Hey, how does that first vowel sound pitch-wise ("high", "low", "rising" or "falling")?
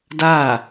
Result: falling